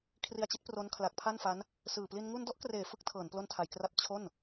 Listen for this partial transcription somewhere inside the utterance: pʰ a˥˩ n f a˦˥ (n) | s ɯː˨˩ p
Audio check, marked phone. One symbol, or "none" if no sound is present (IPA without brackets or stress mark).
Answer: n